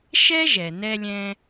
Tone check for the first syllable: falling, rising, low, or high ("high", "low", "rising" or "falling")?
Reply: high